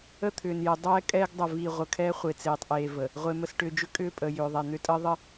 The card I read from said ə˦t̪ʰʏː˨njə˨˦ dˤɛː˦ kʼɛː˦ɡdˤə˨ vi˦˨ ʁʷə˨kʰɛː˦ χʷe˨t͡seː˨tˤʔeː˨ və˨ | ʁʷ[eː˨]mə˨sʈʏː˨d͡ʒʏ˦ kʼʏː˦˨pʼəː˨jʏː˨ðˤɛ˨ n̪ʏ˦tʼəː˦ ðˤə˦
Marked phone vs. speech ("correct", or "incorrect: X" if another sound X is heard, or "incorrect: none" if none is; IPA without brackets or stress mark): incorrect: e˨